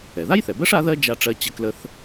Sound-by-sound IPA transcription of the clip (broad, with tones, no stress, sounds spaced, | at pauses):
ɛ˩ ð a˥ j θ ɛ˩ b ɜ˥ ʂ a˥ ð ɜ˥ d͡ʒ a˧ ʈ͡ʂ ɜ˧ t͡ɕ ə˧ k l ə˧ θ